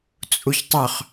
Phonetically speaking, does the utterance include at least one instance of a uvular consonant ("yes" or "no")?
yes